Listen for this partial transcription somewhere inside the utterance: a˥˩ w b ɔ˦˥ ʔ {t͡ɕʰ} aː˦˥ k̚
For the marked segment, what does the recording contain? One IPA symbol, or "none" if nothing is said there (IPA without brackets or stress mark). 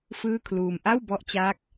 t͡ɕ